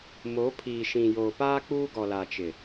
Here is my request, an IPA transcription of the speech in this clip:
mo˨˦ pʰiː˨ʃĩ˨joː˨paː˦ k͡puː˦ɡɔ˨ la˨t͡ʃɪ˨

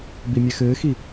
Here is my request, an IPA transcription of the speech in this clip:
bimʲɛxɘːxi

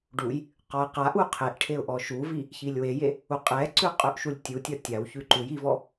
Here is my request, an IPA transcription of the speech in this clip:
ɖuj | qɔə̯qaʔu qʰeʔʈʰeʊ̯ ʔɔʃuvi | çilʲweje | uqʼɛǀʉ qʼʉʔʃulʲtʲutʲɒ tʲawçʉ ǃuj ivɔ

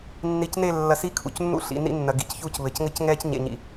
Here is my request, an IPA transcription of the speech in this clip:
nːi˨cne˦˨ lːɐ˨si˦˨ kʰṵ˨cnːṵ˦ ɬḭ˨nḭ˦nːɐ˨ ɡḭ˨cçuː˦c βɘ˨c ŋɘ˦cŋɛː˦cɲḛ˨ɲḭ˨

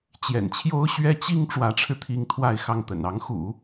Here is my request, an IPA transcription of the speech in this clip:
t͡ɕjɛ̰˨˩nt͡ɕʰjo˥ʊ̯ ɕɥɛ˥t͡ɕi˥ŋ ʈ͡ʂwä˧˥ʈ͡ʂʰɻ̩˧t̪ʰi˧˥ŋ t̪ʰwa˥˧ɪ̯xɑ˥˩ŋt̪ə̰˨˩n ɑ˧˥ŋxṵ˨˩˦

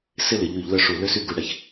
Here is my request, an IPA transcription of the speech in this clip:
sɪ˥˧lɪ˩˧ ʎy˧˩˧ʎlœ˥˩ ʂu˧˩˧ lø˥˧sy˥˩ɡu˧˩˧ ɽɛ˩ç

